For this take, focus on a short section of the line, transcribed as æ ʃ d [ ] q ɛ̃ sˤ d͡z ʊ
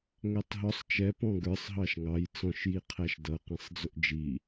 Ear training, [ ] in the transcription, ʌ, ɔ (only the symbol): ʌ